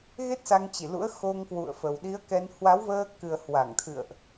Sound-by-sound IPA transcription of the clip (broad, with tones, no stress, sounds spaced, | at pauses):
ɣ e˦˥ t̚ s a˧ ŋ t͡ɕ i˧˩ l ṵ˧˥ ə̯ x o˧ ŋ k w ṵ˧˨ ə̯ f ə˨˩ w ɗ i˨˦ ə̯ k ɛ˧ n h w a˨˦ w v əː˧ k ɨ˨˩ ə̯ h w a˧˩ ŋ t̪ʰ ɨ̰˧˨ ə̯ ʔ